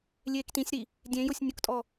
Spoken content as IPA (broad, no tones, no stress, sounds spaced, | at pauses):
lʲ eː k t ĩ sʲ ɾ i | dʲ ẽ j ʊ sʲ nʲ ʊ k tʼ ɔ